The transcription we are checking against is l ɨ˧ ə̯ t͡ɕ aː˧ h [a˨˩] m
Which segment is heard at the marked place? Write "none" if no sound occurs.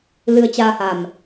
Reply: a˨˩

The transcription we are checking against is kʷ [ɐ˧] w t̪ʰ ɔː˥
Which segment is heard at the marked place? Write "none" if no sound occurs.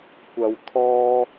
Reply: ɐ˧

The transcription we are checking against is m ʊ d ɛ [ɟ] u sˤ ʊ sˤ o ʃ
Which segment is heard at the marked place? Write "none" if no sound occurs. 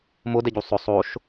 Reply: ɟ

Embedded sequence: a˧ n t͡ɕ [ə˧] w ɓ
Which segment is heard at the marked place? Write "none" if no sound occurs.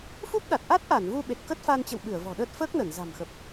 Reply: ə̰˧˨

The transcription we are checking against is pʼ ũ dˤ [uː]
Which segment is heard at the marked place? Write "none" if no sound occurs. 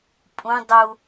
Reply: u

